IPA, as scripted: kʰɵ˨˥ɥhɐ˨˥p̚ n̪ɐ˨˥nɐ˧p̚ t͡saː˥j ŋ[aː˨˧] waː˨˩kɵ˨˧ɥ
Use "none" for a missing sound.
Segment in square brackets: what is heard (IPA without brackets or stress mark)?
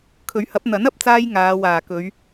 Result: aː˨˧